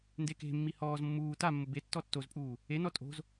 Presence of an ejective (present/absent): present